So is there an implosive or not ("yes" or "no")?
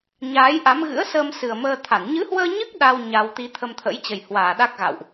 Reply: yes